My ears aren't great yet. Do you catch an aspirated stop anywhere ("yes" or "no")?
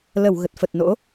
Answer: no